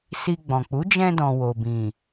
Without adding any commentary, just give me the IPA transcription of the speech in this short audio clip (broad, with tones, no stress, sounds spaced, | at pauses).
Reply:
s i˧ ɡ͡b ɔ̃˨ k͡p u˨˦ d͡ʒ ɛ̃˧ d ɔ̃˨ w o˨ b ĩ˨